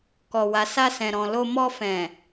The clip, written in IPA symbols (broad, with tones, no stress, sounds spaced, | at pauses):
k ɔ˨ w a˨ s a˧ s ɛ̃˨ ɾ ɔ̃˨ l o˧ m ɔ˧ f ɛ̃˨